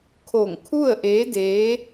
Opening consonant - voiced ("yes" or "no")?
no